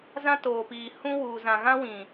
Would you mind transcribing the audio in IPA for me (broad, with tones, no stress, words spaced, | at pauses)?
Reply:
zã˦toː˨piː˨ hũ˦wuː˨ zã˨ɣã˦wĩ˨